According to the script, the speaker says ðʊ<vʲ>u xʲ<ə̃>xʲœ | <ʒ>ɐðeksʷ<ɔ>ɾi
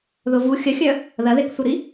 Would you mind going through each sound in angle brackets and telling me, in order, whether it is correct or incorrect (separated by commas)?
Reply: incorrect, incorrect, incorrect, incorrect